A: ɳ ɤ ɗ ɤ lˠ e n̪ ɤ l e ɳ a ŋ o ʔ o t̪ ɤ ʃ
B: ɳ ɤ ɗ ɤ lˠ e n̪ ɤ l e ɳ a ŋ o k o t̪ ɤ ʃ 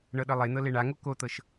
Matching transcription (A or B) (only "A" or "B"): B